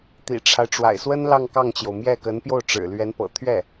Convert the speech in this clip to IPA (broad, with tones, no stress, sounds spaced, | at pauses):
t̪ ḭ˨˩ ʈ͡ʂʰ a˦ ɪ̯ ʈ͡ʂ w a̰˨˩ ɪ̯ s w ə˥ n l ɑ˥˧ ŋ k ɑ˥˩ ŋ t͡ɕ j o˩ ʊ̯ m j ɛ˥˩ k ə˧˥ n p j o˥˩ ʊ̯ ʈ͡ʂ ɻ̩˨˩ l ɥ ɛ˧˥ n p ɤ̰˨˩ t̪ʰ ɥ ɛ˥˩